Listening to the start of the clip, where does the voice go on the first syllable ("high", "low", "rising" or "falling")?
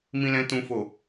low